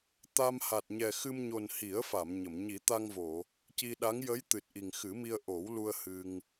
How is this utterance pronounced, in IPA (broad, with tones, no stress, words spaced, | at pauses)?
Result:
t̪a˧m ha˨˩t̚ɲɛ˨˩xɨ˧m ɲo˨˩n hi˨˩˦ə̯fa˨˩˨m ɲə˨˩˨m ɲi˨˩˦t̪a˧ŋvo˨˩˨ | ci˧ɗa˧˥ŋ jə˧˥j t̪ɨ˨˩t̚ʔi˨˩ŋxɨ˨˩˦mi˧ə̯ ʔo˨˩˦wlu˧ə̯ hɨ˧ŋ